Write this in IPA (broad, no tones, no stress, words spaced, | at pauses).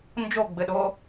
nd͡ʒoɡ͡bɘɗo